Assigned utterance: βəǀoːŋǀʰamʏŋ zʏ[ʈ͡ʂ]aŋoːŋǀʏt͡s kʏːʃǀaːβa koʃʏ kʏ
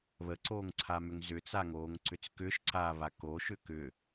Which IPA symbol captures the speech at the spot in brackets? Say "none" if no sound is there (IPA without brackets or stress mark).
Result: t͡s